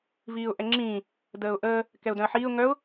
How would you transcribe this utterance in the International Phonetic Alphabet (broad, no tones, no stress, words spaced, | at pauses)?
viːʊ̯ʔɛŋ͡ǁĩː | dəːʊ̯ʔəː | kɛʊ̯dœ̃ə̯ħiːʊ̯ ŋœʊ̯